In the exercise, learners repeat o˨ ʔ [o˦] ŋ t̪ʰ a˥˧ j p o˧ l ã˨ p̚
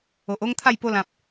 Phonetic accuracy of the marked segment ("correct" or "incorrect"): correct